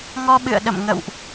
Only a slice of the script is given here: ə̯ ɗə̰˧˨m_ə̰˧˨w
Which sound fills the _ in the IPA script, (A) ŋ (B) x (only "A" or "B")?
A